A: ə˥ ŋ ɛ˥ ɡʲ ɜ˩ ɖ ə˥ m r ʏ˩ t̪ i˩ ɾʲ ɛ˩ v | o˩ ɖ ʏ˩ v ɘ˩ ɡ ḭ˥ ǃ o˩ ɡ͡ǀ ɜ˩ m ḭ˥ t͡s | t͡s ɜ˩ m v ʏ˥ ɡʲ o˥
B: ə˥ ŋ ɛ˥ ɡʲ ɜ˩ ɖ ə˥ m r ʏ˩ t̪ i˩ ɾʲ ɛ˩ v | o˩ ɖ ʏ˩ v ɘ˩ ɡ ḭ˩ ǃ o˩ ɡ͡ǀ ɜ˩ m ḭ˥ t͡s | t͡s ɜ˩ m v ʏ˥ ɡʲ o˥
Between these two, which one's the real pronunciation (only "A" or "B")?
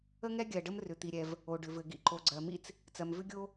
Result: B